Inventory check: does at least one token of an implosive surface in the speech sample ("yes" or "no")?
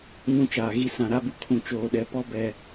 yes